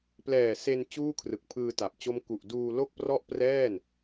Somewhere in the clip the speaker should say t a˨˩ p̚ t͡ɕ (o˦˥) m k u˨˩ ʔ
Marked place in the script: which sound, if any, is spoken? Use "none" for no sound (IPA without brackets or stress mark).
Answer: o˦˥